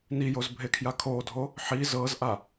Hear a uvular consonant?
no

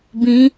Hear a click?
no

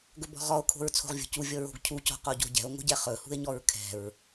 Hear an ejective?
no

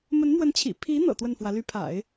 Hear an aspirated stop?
yes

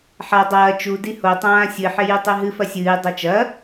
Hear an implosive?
no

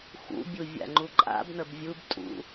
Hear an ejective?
yes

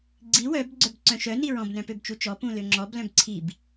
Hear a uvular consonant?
no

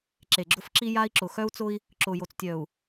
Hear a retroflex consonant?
no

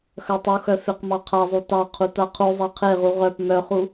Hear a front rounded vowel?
yes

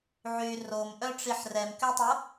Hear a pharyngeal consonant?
yes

